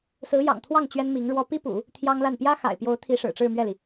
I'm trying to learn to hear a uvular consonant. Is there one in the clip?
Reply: no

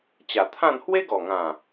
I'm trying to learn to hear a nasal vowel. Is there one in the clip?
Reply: yes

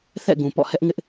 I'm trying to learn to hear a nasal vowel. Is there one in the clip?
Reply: yes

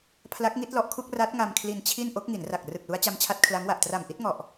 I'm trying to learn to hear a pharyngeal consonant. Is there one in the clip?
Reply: no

